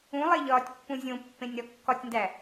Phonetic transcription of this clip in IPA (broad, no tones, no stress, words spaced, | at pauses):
ũlˠeʎɒːtʲpːũ zʲõpːẽnʲɾɒ kːɒtʲndæ